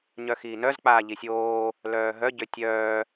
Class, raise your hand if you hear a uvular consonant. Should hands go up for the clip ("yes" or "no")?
no